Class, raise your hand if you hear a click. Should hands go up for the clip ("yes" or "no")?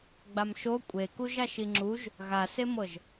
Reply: yes